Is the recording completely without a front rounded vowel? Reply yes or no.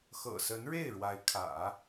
yes